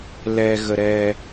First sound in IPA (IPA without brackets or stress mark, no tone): l